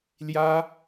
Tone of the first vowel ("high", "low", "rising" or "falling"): high